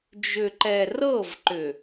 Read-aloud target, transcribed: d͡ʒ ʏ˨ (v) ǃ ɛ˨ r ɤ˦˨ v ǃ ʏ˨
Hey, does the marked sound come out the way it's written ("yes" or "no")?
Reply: no